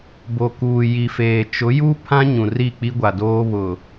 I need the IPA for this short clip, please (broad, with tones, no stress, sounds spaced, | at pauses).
b o˨ k uː˨ j i˨ f eː˨ t͡ʃ ʊ˨˦ j u˦ pʰ ã˦ ɲ ũ˨ r i˦˨ k͡p i˦ ɡʷ a˨ d oː˦ β ʊ˨